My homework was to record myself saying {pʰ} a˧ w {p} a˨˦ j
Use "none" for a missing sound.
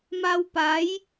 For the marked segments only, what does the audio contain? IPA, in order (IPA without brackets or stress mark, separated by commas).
m, p